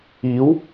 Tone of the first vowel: rising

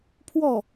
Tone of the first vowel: falling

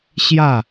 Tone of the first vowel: falling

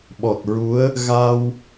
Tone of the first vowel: low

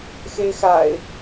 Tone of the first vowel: high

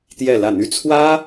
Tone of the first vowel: falling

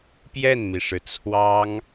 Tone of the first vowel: falling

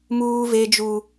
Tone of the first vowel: high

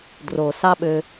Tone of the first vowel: low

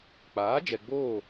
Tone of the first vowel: rising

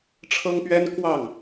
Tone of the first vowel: high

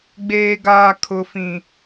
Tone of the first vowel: high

